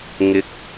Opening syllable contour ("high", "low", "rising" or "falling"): rising